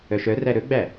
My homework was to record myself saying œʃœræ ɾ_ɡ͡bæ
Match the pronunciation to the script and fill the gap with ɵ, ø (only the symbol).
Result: ɵ